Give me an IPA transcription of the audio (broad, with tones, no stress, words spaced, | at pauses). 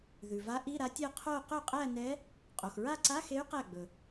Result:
ðʉ˩va˧˥ ʔi˧˥˧ɾa˧˥tʲæ˥˧ qʰo˥˧ qɵ˥˩qʼæ˥˧nɛ˧˥ | qʼo˩xɹa˥˧ǀa˧˥˧xe˧˥y̯ qæ˥˩ɡ͡bɵ˩